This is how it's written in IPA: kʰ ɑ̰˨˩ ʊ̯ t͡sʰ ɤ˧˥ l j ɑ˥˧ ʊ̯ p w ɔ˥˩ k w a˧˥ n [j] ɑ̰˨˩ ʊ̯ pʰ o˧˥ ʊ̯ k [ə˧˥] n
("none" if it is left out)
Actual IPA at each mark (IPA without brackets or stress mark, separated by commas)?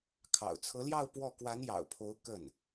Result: j, ə˥˩